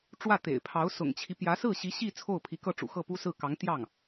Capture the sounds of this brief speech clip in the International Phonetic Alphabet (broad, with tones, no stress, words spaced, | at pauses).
ʈ͡ʂwä˥˩t̪ḛ˨˩ɪ̯pʰɑ˧˥ʊ̯ sʊ̰˨˩ŋt͡ɕʰi˦pjä˧˥ sɹ̩˥˩ɕi˧˥ ɕi˥˧ t͡sʰo˥˩ʊ̯pʰi˧˥kɤ˥˩ʈ͡ʂṵ˨˩ xɤ˥˩pu˥sɹ̩˥˩ kɑ˧˥ŋ t̪jɑ˥˩ŋ